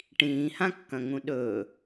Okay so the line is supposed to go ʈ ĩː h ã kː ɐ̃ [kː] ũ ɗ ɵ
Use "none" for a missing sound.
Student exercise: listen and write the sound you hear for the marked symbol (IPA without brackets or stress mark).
ŋ